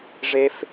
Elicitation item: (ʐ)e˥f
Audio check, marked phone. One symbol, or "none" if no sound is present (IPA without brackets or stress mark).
ʐ